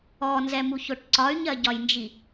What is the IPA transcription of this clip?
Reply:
ɔnzɛmuçoʈ ǀɒy̯ɲɜɟɒjnd͡ʒi

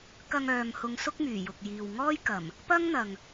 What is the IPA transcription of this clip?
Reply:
kɐ˧ŋœː˨mhʊ˨˧ŋ sʊ˥k̚myː˨˩ jʊ˨k̚jiː˨wŋɔː˥j kɐ˨˩m | pɐ˥ŋn̪ɐ˨ŋ

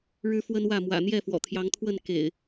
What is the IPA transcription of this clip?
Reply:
ɻɻ̩˦fwə˦nwä˥˨ mwä̰˨˩n̪jɛ˥˨fwɔ̰˨˩ t̪ʰjɑ˨˦ŋt̪ʰwə˥˨n kḛ˨˩ɪ̯

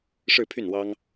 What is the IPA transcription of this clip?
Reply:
ʂɻ̩˥˧pʰy˥˩nwɑ˥ŋ

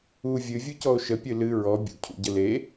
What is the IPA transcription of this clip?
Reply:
u vʲɨvʲucɔo̯ ʃəpʲɨ lɨ ɹɔ bʲṵcʰṵ ɟəle

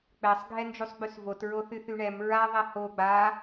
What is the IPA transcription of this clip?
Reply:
k͡pɛsˤ ɡʱɛnd͡ʒusˤɡ͡bysvot ɹoθyθyɳɛm ɹa ðˤɛho ɡ͡ba

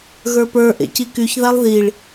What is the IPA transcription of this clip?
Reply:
ɣə˞pə˞ ʔḛcikyç ðalˠðiɭ

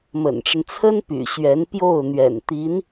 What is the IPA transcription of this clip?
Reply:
mə̰˨˩nʈ͡ʂə˦n t͡sʰə˥npy̰˨˩ ɕɥɛ˧˥npjo˥˩ʊ̯ n̪ɥɛ̰˨˩nt̪i˧˥n

